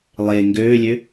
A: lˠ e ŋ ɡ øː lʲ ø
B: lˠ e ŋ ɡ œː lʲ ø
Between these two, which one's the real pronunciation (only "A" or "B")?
A